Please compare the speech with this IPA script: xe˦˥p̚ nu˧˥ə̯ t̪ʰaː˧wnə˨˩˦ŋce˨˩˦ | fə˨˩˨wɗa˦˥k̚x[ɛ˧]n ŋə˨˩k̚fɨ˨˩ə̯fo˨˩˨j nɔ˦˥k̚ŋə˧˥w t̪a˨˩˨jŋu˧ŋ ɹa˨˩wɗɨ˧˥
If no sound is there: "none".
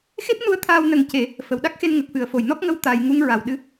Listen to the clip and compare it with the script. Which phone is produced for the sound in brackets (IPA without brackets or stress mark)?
e˧